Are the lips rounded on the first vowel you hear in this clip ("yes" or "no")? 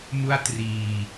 yes